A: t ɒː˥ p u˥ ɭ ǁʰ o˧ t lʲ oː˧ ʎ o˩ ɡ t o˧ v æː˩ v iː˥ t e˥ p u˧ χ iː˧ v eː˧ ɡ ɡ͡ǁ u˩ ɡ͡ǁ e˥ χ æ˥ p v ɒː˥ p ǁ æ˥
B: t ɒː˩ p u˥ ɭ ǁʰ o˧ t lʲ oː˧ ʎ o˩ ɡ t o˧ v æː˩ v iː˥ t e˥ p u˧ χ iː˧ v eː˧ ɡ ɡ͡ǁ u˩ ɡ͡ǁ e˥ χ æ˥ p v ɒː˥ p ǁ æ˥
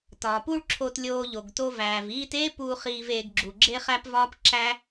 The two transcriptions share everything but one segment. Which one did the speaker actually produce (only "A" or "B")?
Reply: B